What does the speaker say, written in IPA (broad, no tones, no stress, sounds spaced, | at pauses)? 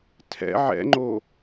tʰ ɛ̰ ʕ ɛ̰ ŋ͡ǃ o